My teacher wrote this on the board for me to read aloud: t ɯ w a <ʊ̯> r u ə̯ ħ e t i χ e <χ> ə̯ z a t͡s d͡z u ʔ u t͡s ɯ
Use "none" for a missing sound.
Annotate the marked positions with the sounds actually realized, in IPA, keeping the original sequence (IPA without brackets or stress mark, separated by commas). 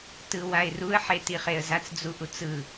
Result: ɪ̯, none